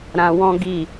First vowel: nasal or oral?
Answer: nasal